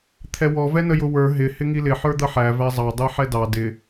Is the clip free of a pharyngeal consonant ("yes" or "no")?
no